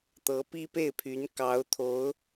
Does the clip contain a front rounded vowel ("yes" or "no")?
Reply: yes